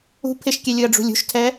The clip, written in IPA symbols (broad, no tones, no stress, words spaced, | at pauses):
ṳ pʰɪʃkʲɛ lʲʊɐ̯ɖ͡ʐṳlʲṳʃtʰɛ